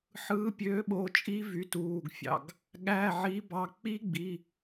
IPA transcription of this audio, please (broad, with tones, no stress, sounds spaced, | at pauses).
ħ ɯː˩˥ pʲ øː˩˥ ɓ o˩˧˩ t͡ʃʼ i˧˥ v y˩˥ t uː˩˧˩ ɡ fʲ ɑ̰˩˧˩ ɡ | ɠ æ˩˧˩ ʕ i˩˥ b ɑ˩˧˩ k͡p i˧˥ ɡ͡b i˩˧˩